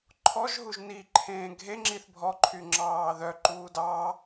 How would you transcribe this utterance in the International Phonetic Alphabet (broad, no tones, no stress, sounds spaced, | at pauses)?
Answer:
ǃʰ ɔ ʒ ɦ u ʒ n i ǃʰ ẽː ɡʱ e ŋ͡ǁ i θ bʱ ɔ ǃʰ y ŋ͡ǁ ɑː ð œ ǃ uː d ɑː